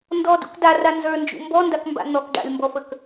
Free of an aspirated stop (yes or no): yes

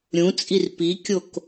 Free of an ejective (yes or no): no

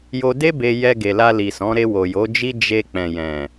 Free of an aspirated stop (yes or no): yes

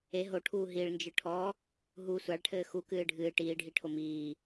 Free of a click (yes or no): yes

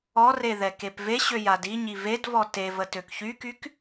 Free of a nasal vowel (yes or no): yes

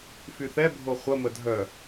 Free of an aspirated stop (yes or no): yes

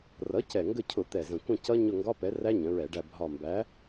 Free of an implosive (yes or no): yes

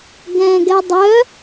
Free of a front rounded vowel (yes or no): no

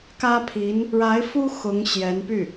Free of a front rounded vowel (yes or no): no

